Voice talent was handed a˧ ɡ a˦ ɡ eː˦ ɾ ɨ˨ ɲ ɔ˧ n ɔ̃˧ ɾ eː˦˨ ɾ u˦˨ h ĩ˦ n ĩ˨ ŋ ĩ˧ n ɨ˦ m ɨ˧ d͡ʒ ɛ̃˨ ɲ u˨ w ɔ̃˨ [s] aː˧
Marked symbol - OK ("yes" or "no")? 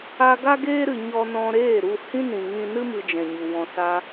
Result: yes